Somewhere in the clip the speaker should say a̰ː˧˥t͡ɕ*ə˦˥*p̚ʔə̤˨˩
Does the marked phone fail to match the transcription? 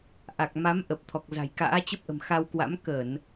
no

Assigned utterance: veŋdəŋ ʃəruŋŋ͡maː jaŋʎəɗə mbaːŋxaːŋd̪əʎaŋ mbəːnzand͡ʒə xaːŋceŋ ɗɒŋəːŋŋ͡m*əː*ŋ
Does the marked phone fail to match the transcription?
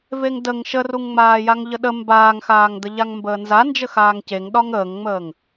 no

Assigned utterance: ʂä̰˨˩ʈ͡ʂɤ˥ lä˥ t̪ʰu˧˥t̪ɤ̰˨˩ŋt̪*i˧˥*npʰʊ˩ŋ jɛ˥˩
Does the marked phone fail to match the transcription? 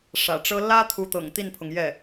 yes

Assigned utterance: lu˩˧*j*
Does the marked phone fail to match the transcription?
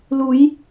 no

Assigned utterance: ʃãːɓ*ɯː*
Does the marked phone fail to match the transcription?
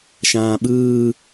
no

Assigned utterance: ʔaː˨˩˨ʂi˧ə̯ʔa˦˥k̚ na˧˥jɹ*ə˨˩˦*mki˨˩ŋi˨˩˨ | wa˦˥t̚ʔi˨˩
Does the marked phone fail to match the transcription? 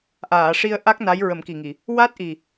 no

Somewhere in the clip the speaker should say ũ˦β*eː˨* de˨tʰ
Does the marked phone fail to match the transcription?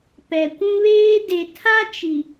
yes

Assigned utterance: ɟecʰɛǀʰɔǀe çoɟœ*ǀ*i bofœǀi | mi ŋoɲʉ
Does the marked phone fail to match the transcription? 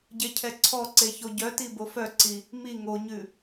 yes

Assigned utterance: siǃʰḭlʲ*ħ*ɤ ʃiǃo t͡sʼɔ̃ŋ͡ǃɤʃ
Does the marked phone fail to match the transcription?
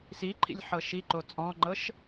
no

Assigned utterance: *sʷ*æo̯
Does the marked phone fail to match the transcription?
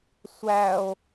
no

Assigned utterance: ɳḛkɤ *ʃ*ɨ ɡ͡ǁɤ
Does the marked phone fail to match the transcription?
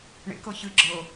yes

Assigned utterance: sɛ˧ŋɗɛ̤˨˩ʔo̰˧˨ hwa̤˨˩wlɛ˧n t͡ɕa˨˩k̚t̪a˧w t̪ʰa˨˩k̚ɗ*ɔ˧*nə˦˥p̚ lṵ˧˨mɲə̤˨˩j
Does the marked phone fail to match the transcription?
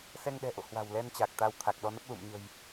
no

